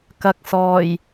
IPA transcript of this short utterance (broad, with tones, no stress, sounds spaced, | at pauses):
k ɐ˨ k̚ s ɔː˨˩ j